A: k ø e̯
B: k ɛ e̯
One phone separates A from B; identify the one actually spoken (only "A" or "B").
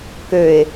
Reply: A